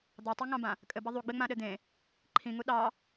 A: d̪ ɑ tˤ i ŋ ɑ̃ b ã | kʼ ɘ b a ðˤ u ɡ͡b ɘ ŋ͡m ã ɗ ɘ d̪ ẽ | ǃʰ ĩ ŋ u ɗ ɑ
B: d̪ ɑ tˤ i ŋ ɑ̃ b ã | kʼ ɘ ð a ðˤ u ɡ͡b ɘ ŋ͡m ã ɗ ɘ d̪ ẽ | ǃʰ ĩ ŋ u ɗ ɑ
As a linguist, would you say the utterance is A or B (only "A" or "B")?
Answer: A